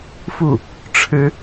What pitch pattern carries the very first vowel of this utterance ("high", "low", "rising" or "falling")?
falling